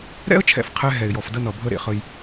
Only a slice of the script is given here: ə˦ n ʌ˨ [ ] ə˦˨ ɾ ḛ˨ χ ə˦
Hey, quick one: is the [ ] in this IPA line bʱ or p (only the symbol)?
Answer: bʱ